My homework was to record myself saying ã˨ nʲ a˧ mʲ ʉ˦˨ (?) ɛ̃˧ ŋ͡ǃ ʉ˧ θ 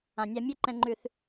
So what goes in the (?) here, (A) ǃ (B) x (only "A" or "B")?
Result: A